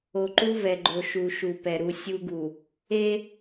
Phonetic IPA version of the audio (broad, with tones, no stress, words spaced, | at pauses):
o˨ǃu˦vɛ˨ɡ͡ǃo˨ ʃu˨ʃu˨pɛ˨ ɾu˨ sʲu˦ɡu˨ | e˦